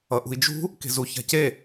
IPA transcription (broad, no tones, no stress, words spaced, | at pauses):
ʌʔṳi̯d͡ʒṳ | ke̤zu ça̤ce